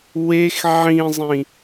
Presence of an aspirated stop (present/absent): absent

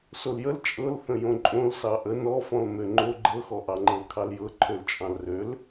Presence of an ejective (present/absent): present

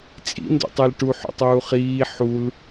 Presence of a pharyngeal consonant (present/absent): present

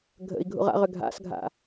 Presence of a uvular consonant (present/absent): present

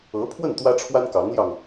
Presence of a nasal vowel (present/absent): absent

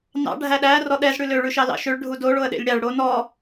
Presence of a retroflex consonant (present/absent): present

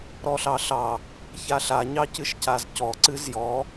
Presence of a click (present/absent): present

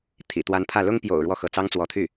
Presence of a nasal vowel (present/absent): absent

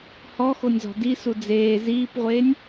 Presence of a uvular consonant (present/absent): present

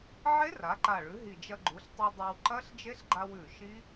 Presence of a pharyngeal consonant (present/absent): present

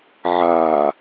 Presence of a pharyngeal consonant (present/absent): present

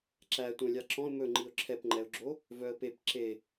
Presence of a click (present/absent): present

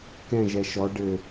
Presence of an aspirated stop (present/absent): absent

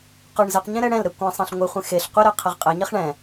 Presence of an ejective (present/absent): present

